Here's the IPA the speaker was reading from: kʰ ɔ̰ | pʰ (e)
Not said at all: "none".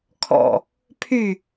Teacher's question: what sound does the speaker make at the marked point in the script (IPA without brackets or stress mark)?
y